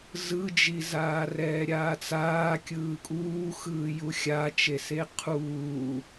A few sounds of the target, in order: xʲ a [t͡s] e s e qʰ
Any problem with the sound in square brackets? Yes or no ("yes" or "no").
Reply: yes